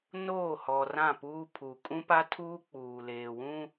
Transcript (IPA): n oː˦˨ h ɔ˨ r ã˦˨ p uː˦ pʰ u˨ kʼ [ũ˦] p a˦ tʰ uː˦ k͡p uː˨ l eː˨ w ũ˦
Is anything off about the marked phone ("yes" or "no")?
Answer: no